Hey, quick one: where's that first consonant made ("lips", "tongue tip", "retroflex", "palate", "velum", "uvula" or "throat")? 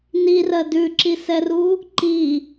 tongue tip